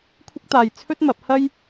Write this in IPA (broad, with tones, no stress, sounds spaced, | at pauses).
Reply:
kʷʰ ɪ˥ k̚ t̪ aː˧ j t͡sʰ ɵ˥ t̚ m ɐ˨˥ p̚ h ɐ˥ j